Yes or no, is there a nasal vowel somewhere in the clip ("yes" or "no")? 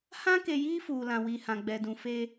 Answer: yes